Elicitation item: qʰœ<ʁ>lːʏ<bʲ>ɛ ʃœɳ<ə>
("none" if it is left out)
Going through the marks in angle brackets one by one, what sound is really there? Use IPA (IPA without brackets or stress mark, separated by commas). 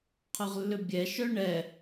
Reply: ʁ, bʲ, ɛ